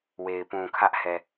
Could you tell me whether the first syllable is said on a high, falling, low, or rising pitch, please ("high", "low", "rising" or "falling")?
low